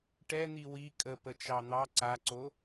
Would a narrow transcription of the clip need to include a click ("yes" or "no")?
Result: yes